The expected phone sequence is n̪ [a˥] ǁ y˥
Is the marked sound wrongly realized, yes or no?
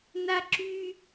no